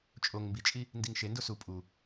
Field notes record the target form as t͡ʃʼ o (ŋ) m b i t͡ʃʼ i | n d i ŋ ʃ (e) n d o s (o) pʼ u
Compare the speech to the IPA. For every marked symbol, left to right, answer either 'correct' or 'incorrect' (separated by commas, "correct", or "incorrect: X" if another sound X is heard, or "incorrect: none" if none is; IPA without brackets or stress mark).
correct, correct, incorrect: u